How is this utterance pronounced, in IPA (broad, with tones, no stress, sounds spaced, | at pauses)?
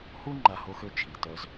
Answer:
h u˥ ŋ͡ǃ a˦ h o˥ x ø˥ t͡ʃʰ i˨ t œ˦ z